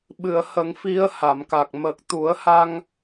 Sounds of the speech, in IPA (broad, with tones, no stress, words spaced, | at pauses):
ɓɨ˨˩˨ə̯hə˨˩˦ŋfi˧˥ə̯ ha˨˩˨mka˨˩k̚ mə˨˩k̚t̪u˨˩˦ə̯ha˧ŋ